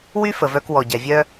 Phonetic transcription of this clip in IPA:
w y˥ f ə˩ v œ˧ k w ɔ˩ ɟ ɛ˩ vʲ œ˧

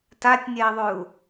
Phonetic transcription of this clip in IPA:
t a tʲ nʲ ɛ i̯ ðˤ ʉ u̯

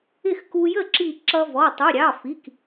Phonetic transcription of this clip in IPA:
ɪ˥˩ x k u˧ j ə˥˩ ǁ i˧˩ ǁ ʌ˧ v ɔ˩˧˩ tˤ u˩˧˩ ɾʲ ɑ˩˧˩ f i˩˧˩ k

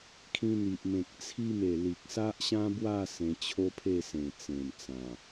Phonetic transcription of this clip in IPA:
kʰ ĩ˧ n̪ i˨ ʔ m ẽ˨ k̚ t͡sʰ i˧ m e˨˩ l i˨ k̚ s a˦ ʔ ɕ ã˦ b w a˥˧ s ẽ˧ t͡ɕʰ o˦ pʰ e˥˧ s ẽ˨˩ t͡s ẽ˨˩ m t͡s ã˨˩

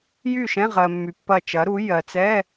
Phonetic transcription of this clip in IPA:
j y˥˩ ʃ ɛ̃˧˥˧ ʁ ɜ˩ mː y˩ pː ɐ˧˩ t͡ʃ ɐ˩˥ ɾ u˩˥ j ɜ˩ t͡s ɛ˧˥˧

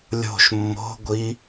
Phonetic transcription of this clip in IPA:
lʲ o̤ ʃ mː o̤ ɡʷ i

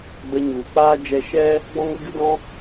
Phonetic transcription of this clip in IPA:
ɡ͡b ə˧ ɲ u˨ k͡p aː˦ d͡ʒ ɛ˧ ʃ ɛ˦ | ɡ͡b ɔ̃˦ ŋ ɾ ə˦ ɡ ɨ˦ d ɔ̃˦

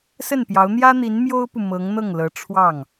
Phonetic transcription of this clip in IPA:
s ə˥˩ n p j ɑ˧˥ ʊ̯ n̪ j ä˥ n̪ i˧˥ n m j o˥ ʊ̯ p u˨ m ɤ˧˥ ŋ n̪ ɤ˥˩ ŋ l ɤ˧˥ ʈ͡ʂʰ w ɑ˥˩ ŋ

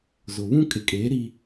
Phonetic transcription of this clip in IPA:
z ʊ˨ β ũ˦ kʼ ɪ˨ kʼ eː˨˦ ɾ i˦

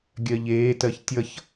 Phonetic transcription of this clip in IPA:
ɡʲ ɜ ʎ eː t ɜ ç tʲ ʌ ç

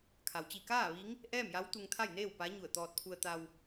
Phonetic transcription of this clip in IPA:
kʰ a˩ w t͡ɕ i˧˩ k aː˥˨ ʋ i˧˥ ŋ | ʔ ɛː˥˨ m j a˧˥ w t̪ u˧ ŋ t̪ʰ a˥˨ j n eː˥˨ w p aː˧˥ ɲ u˧˩ ə̯ t̪ ɔː˧ t̚ pʰ u˧ ə̯ t̪ a˧ w

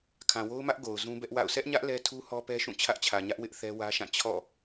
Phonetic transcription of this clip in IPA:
kʰ ã˨ w o˦ ʊ̯ m ä˦ ʔ ɡ o˨ ʊ̯ z ũ˦ b ɛ˦ ʔ w a̰˦˨ ʊ̯ s ɛ˦ ʔ ɲ ä˦ ʔ l ɛ˦ tʰ u˦ h ɔ˦ p ɛ˦ ʃ ũ˦˨ t͡ɕʰ ä˦ ʔ t͡ɕʰ ä˨ ɲ ä˦ ʔ w ɪ˦ ʔ θ ɛ˦ w ä˦ ʃ ã˦˨ t͡ɕʰ ɔ̰˦˨

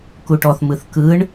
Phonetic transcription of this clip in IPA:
k u ʈ ɔ θ m ɯ θ k ɯ ɳ

